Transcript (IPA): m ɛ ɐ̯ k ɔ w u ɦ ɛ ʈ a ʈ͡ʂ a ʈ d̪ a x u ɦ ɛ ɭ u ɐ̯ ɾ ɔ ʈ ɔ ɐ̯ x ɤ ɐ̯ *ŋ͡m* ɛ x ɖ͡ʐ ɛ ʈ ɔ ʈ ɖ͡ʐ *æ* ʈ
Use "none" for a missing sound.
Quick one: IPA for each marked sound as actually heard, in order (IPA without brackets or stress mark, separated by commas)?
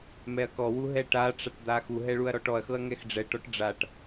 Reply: ŋ, a